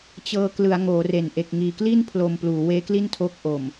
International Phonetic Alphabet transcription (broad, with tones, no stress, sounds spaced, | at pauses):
t͡ɕ ɤː˧ k l ɯ˩˦ a̯ ŋ oː˩˦ r e˨˩ n ʔ e˨˩ k̚ ŋ iː˨˩ k l i˥˩ n pʰ l o˧ m p l uː˩˦ w eː˦˥ k l i˥˩ n tʰ o˦˥ k̚ ʔ o˨˩ m